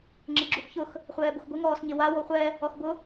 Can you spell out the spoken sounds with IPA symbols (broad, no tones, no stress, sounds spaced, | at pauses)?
ŋ͡ǁ ɪ ɡ͡ǁ u x ç ʊ x | χʷ ɛː b o x ɡʷ ɪ ŋ ɔː s ɲ ɪ w a w o χʷ ɛ | ɔ x b ʊ